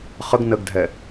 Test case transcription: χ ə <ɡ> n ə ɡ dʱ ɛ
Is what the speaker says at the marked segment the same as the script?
yes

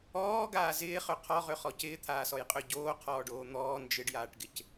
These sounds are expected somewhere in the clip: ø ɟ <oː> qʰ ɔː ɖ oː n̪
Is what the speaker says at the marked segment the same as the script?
yes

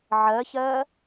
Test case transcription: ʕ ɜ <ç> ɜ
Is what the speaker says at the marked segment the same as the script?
yes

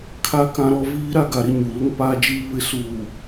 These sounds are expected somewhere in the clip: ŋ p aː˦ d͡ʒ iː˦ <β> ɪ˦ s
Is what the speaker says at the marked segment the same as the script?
yes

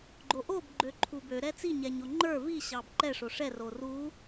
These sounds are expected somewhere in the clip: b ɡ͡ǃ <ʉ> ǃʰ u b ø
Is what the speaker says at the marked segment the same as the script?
no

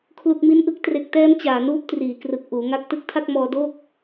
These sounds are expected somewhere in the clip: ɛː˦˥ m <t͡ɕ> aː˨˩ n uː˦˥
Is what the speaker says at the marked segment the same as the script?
yes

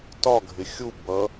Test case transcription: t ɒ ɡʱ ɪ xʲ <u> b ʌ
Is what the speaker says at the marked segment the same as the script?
yes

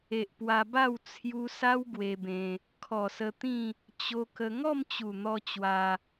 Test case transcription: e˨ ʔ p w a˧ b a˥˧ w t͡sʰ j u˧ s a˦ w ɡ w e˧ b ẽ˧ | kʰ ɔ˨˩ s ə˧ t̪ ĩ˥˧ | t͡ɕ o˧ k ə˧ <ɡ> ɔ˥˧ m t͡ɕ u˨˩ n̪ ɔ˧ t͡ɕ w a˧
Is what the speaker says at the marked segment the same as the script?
no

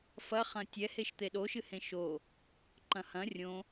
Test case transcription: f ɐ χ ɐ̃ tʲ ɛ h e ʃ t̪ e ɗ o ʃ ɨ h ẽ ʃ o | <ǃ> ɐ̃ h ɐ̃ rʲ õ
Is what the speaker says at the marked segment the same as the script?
yes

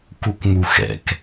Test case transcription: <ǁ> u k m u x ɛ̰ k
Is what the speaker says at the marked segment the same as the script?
no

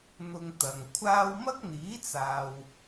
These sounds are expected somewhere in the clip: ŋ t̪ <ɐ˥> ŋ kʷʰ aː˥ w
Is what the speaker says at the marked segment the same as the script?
no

